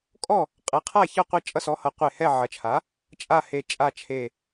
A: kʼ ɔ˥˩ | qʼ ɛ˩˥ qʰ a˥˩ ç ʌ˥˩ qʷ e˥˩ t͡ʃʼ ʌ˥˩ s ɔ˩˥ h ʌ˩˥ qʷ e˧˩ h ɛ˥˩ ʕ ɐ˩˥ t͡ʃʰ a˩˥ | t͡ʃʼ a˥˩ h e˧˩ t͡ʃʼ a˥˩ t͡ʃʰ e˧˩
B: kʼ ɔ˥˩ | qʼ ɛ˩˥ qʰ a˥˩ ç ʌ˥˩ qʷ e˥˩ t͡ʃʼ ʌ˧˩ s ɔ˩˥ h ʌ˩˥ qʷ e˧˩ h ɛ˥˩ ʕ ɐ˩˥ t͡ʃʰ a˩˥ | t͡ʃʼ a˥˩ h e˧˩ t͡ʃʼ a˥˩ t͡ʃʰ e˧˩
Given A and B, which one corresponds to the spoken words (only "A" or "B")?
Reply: A